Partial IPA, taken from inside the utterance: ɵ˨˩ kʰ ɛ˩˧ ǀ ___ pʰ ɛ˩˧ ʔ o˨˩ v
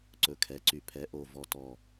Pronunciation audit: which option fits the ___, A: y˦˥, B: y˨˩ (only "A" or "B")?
B